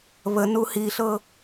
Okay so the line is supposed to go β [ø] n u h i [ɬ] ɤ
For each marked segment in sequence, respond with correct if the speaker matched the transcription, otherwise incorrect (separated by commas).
incorrect, correct